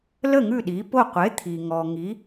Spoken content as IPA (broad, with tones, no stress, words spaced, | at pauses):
lə˥˩ ŋʉ˥˩ɗi˩˥po˥˩ qʷe˩˥t̪ʰi˩ŋɔ˩ ŋi˩˥